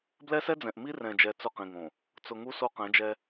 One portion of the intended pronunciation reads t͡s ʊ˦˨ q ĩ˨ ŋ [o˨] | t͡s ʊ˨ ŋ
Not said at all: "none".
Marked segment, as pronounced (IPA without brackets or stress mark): õ˨